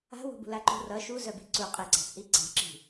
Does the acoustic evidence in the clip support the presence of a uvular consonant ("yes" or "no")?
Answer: yes